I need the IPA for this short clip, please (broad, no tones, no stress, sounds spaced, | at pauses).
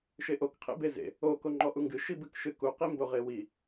ʃ e ʔ o k qʰ ḛ b e z ḛ | o k o ŋ͡ǃ ɔ ʔ u ŋ ɡ ɨ ʃ i b ɨ k ʃ ɨ k u q i m b o ʁ e w i